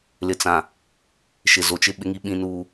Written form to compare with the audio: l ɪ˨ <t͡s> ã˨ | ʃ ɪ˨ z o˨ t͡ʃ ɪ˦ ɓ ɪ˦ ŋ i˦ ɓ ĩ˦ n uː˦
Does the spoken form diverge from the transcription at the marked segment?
no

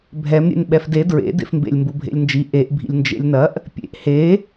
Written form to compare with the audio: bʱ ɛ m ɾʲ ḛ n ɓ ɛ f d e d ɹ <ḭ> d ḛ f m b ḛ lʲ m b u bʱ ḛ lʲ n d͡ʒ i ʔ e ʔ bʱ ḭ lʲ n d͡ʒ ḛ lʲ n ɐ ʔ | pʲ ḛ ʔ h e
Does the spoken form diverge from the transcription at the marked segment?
yes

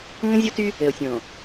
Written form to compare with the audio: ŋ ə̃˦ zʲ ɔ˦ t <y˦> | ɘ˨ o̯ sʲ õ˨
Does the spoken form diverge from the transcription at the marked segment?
no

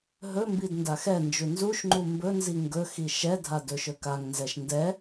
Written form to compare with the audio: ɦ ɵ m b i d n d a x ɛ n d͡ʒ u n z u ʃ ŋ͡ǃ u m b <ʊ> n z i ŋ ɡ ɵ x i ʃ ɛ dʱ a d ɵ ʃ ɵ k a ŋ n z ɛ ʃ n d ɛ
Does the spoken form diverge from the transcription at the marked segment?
yes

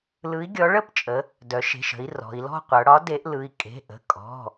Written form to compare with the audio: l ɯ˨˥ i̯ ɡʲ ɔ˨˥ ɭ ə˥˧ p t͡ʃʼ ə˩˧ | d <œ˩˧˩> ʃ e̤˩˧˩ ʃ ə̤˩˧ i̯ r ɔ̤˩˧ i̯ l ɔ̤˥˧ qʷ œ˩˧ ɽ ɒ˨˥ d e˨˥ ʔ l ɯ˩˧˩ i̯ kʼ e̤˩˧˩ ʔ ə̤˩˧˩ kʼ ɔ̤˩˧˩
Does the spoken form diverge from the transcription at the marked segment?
yes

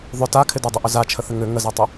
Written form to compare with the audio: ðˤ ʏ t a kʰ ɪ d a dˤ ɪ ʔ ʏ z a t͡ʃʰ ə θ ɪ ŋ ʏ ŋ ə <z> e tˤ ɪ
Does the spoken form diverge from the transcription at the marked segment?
no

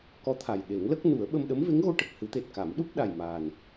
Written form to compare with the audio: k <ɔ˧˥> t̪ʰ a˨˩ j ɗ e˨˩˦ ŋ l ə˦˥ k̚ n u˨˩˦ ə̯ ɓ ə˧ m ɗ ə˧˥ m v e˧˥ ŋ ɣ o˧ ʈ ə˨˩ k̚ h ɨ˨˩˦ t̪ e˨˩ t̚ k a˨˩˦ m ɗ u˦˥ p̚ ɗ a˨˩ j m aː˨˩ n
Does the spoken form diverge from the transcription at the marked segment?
no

